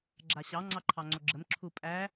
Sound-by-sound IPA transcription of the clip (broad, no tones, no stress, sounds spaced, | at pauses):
ɡ͡ǁ a ɕ ɑ ŋ͡ǀ ɑ ǃʰ ɑ ŋ͡ǀ o ɡ͡ǁ ə m ǁʰ u pʼ æ